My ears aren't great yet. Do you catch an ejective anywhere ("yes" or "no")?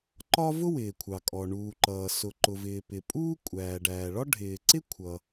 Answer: yes